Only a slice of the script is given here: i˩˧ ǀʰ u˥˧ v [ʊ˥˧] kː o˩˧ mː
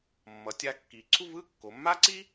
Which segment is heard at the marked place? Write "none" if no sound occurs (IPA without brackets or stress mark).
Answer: ɯ˥˧